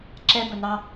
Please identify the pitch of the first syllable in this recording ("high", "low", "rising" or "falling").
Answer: high